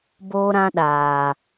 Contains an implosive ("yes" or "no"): yes